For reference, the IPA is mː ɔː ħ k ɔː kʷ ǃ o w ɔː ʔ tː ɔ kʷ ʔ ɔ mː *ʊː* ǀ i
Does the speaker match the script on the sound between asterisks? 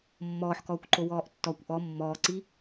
no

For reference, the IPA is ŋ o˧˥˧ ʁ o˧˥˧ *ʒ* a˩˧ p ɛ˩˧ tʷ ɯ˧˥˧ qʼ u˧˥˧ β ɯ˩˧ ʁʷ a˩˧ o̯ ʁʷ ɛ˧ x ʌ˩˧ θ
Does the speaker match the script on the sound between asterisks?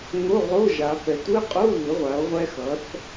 yes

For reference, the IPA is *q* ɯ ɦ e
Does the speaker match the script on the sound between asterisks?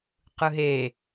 yes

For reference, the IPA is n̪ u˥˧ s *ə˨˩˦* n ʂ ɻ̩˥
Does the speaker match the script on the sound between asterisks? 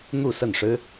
no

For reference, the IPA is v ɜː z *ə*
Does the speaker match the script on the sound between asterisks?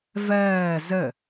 yes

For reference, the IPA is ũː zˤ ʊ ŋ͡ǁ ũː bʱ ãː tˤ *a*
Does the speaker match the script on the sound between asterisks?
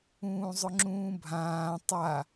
yes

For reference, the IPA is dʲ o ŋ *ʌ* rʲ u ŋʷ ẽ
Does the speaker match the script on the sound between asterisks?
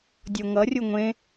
yes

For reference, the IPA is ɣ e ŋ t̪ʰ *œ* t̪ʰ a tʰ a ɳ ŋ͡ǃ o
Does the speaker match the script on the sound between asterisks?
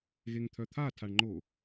yes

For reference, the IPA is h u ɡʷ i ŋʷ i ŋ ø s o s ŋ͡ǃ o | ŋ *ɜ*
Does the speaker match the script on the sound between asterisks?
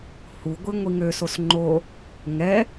no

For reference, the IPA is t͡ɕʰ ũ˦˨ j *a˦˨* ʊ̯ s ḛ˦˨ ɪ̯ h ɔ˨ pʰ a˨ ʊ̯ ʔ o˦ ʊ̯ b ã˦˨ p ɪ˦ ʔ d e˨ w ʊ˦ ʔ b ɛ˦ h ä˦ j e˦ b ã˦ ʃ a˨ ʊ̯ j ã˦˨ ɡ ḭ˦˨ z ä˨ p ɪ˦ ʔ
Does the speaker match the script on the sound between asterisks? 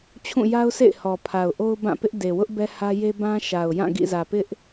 no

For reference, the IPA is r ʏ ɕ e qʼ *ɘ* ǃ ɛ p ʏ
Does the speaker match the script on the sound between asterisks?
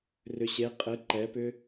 yes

